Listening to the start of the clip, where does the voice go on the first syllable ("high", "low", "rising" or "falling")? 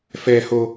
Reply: high